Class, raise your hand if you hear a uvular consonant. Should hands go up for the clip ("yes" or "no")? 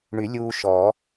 no